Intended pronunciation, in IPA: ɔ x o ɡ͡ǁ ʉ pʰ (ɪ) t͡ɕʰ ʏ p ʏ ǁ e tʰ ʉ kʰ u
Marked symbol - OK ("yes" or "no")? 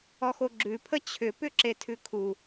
no